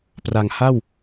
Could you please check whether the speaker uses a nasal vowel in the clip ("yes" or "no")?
no